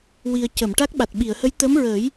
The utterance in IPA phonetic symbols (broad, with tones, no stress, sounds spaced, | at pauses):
w i˨˩ ə̯ c ə˨˩˨ m ʈ a˦˥ k̚ ɓ a˨˩ t̚ ɓ i˨˩˨ ə̯ h ə˧˥ j t̪ ə˧˥ m ɹ əː˨˩˦ j